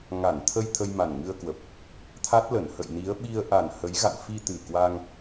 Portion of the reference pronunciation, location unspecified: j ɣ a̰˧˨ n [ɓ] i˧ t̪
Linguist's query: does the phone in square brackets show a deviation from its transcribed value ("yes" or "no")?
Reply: yes